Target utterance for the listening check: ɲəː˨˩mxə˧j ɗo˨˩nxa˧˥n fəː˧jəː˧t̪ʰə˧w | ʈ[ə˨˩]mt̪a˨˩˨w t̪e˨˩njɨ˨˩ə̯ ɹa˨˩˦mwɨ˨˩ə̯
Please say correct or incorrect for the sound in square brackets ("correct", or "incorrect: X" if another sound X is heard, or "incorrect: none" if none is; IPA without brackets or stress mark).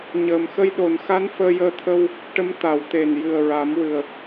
incorrect: ə˧˥